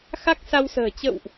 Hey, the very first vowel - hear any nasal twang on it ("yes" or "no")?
no